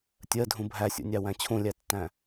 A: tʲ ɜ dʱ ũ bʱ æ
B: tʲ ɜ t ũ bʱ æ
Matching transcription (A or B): A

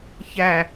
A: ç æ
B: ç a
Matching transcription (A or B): A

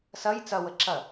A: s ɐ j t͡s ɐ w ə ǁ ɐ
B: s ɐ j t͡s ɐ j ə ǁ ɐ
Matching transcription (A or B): A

